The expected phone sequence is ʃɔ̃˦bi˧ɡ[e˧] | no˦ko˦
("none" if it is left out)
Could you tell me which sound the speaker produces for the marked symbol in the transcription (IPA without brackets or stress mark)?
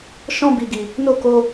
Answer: i˧